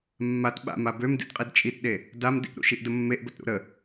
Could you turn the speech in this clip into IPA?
mː a t ɓ a̰ m a b ø m d ḭ d qʼ i d t͡ʃʼ i t ɗ e | d a m d ḭ ʔ ɾ ṵ ʃ i ʔ d ə mː e ʔ b ə t ɾ ṵ ɾ ə

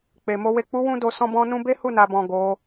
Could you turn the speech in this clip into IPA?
k͡p e˨ m o˨ w e˨ k͡p u˨˦ w ũ˦ d o˧ s ɔ̃˦ b ɔ̃˧ n ũ˧ b e˦ h u˦˨ n a˨ b ɔ̃˨ ɡ o˨˦

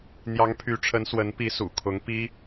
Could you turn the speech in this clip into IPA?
n̪ j ɑ˧˥ ŋ pʰ y˧˥ ʈ͡ʂʰ ə˧˥ n s w ə˧˥ n p i˧˥ s ṵ˨˩ kʰ ʊ˧˥ ŋ p i˥

